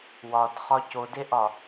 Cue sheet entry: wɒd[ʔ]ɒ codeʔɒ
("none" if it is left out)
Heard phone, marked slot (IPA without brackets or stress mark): χ